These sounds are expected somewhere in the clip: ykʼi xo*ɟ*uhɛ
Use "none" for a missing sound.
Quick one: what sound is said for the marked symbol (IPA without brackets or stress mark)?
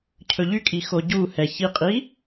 ɟ